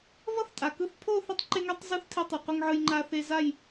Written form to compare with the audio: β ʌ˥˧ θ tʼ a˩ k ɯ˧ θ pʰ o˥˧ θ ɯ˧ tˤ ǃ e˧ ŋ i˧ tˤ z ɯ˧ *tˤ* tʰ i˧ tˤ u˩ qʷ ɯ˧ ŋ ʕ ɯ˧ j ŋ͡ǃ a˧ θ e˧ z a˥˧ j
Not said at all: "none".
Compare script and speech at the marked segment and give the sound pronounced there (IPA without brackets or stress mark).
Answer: θ